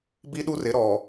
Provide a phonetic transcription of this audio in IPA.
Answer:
bi˦ɗu˦rɪ˨˦ ɾɔ˨

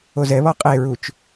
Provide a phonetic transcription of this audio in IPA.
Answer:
ozɛβɔ qʼeɹut͡ʃ

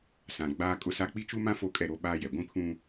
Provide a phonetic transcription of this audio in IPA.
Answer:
sã˨ ɡ͡baː˦kʼʊ˦sa˦ k͡pi˦t͡ʃu˦mã˦ fo˦kʼɛ˦˨ ɾo˦ɓaː˦jɛ˨ ɡʷĩ˦pʰũ˦

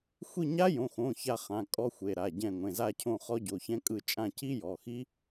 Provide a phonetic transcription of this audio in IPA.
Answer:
xʷi˦˨ɲa˦˥jõ˩˧˩xõ˩˧˩ ça˦˨χã˩˧˩ kʼɔ˦˥xʷe˩˧˩ ɾa˩˧˩ ɟɛ̃˦˨ ŋʷẽ˩˧˩za˦˨cʰõ˦˨ χɔ˦˥ɟo˩˧˩çɛ̃˦˥kʼɯ˦˨ t͡ʃʼã˦˨ci˦˥jɔ˩˧˩xi˦˥

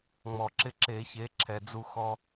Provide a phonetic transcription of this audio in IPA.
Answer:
ŋ͡mɔ˨˩˦ǁɪ˦˨ ǁe˨˩˦çe˩˥ ǁʰɛ˨d͡zu˦ xɔ˦

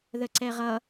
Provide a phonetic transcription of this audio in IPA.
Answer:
ðəǀɛʁʌ

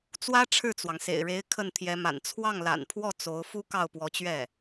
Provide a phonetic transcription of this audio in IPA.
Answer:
t͡swä˥ ʈ͡ʂʰɻ̩˥˩t͡swɑ˩ŋsḛ˨˩ɪ̯ɻe˧˥ɪ̯ kʰə˥˩nt̪ʰjɛ˧˥ma̰˨˩n t͡sʰwɑ˥˩ŋla̰˨˩npʰwɔ˥˩ t͡so˧˥ʊ̯ fu˥kɑ˥˩ʊ̯pwɔ˧˥t͡ɕɥɛ˥˩

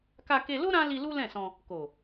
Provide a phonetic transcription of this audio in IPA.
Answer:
ka˧ke˧lo˦ ɾã˦ li˧ lu˦lɛ̃˦˨sɔ̃˧ | ko˨

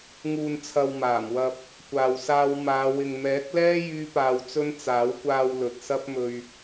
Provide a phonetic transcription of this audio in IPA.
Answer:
ŋuː˨nt͡sʰɐ˨w maː˨˩mwɐ˧p̚ | kʷaː˧wsaː˥w maː˨˧ wɪ˨ŋmɛː˨˥k̚lɛː˥ jyː˥paː˧wt͡sɵ˥n t͡saː˨˥wkʷaː˧w lɵ˨t̚sɐ˥p̚mɵ˧ɥ

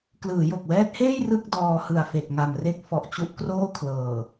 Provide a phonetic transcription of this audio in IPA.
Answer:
klɯː˩˦jo˨˩k̚wɛː˦˥t̚heː˥˩j rɯ˥˩k̚ dɔː˧hɯ˨˩a̯fe˨˩k̚ŋa˨˩m re˥˩k̚ fɔ˨˩ʔt͡ɕu˦˥ʔkroː˥˩kʰlɤː˨˩

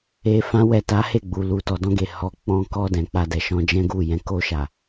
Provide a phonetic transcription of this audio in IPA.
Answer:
e˧ fã˦wɛ˦˨ ta˨˦he˦˨ɡ͡bu˨ lu˨tɔ˨ dɔ̃˧ɡe˨ hɔ˨˦ k͡pɔ̃˧kɔ˧ dɛ̃˨k͡pa˧dɛ˨ ʃɔ̃˧d͡ʒɛ̃˦ɡu˦˨ jɛ̃˧ ko˧ʃa˨

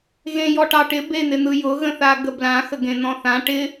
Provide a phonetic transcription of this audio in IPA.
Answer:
ɣẽjɔʈɑʈɪ ben̪ɪn̪ɯjʊ ɣə̃θaɡəblã xəɡẽn̪ɔ̃θã ʈɪ

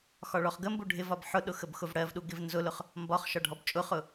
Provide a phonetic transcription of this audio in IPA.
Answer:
xɒɭɔχɡəmbu ɖʱɪvɒb ħʊɗʊ xəbxʊvɽɜvɗu ɡɪvnzʊlʊχ | mbɒχʃɒ ɖʱɔbt͡ʃʼʊχʊ

